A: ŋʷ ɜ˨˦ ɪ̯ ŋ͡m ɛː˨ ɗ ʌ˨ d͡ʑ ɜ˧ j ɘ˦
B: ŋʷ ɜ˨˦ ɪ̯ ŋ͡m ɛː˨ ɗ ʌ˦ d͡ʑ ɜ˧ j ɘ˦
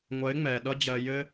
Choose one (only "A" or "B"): B